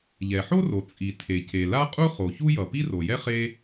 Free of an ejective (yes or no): no